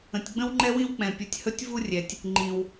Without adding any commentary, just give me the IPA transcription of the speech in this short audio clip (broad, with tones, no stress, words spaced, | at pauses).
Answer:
ə̃˩tʲɡ͡bə̃˦wŋ͡ǃɛ˦wĩ˦w k͡pɛ̃˩pʲu˩tʲ hɵ˦tʲvu˦rʲɛ˩tʲ | ŋ͡ǃĩ˩w